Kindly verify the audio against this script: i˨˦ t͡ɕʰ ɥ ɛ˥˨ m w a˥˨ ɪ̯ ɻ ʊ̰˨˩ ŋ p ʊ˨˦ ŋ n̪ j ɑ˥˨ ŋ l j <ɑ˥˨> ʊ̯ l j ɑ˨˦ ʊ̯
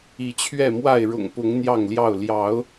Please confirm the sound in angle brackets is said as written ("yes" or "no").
yes